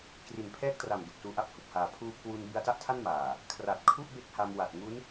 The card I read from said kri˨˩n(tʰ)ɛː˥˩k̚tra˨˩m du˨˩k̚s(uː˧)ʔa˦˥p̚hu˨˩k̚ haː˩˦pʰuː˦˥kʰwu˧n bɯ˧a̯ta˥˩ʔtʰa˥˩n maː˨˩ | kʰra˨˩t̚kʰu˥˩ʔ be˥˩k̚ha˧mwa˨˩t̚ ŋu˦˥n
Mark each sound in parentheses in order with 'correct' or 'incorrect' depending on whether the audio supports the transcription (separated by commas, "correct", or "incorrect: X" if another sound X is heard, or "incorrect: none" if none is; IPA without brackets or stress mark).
incorrect: pʰ, correct